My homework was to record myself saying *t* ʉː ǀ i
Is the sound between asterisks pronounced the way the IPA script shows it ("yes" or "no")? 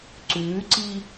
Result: no